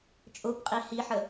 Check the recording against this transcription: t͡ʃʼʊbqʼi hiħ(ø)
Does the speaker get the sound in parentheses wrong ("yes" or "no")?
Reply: yes